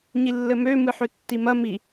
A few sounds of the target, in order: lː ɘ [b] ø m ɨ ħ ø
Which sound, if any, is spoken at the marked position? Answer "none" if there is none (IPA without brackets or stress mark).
m